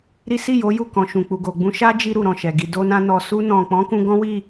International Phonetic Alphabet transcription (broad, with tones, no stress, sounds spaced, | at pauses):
ɾ i˦ s i˦˨ j o˨˦ j u˦˨ k ɔ̃˨ ʃ ũ˨ k͡p u˨ ɡ o˨ ɡ͡b ũ˧ ʃ a˦ d͡ʒ i˧ ɾ u˨ ɾ ɔ̃˨ ʃ ɛ˨ ɡ i˧ d o˧ n ã˧ n ɔ˨ s u˧ n ɔ̃˨ k͡p ɔ̃˨˦ k ũ˧ ɡ ɔ̃˦ w i˦˨